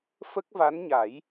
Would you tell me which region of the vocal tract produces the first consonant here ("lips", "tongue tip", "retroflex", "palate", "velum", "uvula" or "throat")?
lips